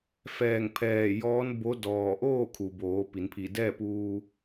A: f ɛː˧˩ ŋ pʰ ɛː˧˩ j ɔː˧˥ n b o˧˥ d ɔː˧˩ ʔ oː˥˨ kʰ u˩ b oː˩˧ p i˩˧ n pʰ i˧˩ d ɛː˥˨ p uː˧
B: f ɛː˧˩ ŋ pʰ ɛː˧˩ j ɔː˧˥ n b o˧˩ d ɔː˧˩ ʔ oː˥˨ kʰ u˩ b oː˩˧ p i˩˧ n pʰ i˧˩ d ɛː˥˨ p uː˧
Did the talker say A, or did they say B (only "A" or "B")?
A